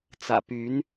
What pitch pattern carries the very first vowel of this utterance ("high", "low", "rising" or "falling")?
low